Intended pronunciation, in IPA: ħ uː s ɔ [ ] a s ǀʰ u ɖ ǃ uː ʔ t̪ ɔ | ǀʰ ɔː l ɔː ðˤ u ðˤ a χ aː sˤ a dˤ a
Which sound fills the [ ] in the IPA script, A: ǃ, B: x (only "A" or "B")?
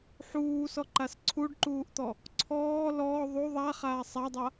A